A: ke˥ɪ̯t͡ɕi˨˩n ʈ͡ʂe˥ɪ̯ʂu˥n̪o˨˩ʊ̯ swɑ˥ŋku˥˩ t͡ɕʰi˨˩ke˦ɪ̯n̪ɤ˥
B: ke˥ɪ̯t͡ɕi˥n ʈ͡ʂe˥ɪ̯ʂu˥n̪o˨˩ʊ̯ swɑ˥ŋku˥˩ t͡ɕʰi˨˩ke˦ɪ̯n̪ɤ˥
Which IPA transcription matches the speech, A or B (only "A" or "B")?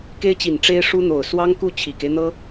A